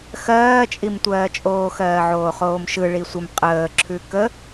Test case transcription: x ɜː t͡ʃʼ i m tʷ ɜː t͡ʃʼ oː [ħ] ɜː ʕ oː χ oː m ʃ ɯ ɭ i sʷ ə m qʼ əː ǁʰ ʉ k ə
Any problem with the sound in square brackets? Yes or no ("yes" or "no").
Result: yes